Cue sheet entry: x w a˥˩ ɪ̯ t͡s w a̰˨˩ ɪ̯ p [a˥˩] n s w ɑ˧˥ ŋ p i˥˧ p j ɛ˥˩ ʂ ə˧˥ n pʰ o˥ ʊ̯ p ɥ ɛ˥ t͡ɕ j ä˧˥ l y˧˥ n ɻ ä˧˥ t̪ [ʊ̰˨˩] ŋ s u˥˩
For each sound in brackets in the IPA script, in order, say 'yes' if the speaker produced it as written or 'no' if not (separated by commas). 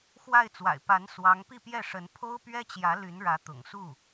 no, yes